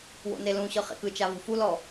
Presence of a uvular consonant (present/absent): present